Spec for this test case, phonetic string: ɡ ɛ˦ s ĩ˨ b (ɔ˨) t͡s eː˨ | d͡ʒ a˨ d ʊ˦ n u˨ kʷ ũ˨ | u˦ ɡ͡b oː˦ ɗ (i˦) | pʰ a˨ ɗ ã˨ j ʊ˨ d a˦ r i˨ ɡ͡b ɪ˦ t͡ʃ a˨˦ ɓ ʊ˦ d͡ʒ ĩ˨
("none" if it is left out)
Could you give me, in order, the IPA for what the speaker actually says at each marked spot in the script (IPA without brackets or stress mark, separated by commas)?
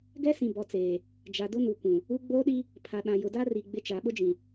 ɔ˨, i˦